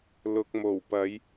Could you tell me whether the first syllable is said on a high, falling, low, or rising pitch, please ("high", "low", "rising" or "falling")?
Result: low